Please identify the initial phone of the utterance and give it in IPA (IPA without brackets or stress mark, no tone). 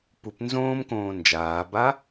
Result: p